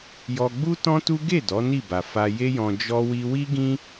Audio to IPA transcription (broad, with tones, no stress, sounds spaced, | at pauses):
j ɔ˧ ɡ͡b u˦ t ɔ̃˦ t u˦ ɡ e˦˨ d ɔ˨˦ n i˦˨ b a˨ f a˧ j e˦ j ɔ̃˧ d͡ʒ ɔ˦ w i˦ w i˦ ɡ ĩ˦